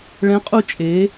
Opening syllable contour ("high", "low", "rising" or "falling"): rising